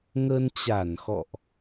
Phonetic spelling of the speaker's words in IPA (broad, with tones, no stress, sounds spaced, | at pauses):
ŋ ə˧ n t͡ɕ a˧˩ n x ɔ̰˧˨ ʔ